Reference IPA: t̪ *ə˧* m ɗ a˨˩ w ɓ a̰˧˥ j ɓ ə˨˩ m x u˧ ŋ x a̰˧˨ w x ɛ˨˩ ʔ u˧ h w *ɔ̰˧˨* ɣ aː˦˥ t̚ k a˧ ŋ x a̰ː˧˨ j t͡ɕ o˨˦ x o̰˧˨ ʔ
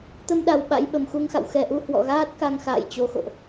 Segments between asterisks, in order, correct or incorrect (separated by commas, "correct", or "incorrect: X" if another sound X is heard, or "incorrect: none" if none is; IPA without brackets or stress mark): correct, correct